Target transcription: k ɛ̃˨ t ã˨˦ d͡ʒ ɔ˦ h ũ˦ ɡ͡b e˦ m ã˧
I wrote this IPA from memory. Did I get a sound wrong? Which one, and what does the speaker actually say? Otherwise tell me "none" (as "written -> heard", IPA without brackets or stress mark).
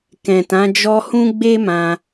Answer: none